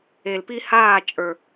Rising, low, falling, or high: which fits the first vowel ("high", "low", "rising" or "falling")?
low